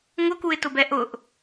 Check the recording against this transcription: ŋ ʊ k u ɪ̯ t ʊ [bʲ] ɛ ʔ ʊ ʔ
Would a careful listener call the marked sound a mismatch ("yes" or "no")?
yes